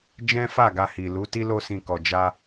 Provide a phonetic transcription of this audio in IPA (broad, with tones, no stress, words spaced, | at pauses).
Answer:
d͡ʒɛ̃˦fa˦˨ɡa˧ hi˨ lu˨˦ti˦ lo˧sĩ˨ kɔ˨d͡ʒa˧